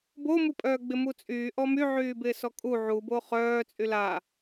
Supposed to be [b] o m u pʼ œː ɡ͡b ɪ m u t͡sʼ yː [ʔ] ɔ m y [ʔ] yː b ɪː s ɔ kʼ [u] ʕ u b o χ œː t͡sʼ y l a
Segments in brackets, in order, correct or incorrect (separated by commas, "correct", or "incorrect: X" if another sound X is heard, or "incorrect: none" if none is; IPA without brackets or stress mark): correct, correct, incorrect: ʕ, correct